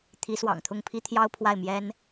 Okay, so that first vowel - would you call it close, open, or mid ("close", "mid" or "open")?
close